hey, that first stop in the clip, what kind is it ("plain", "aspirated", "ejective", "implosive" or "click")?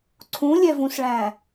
click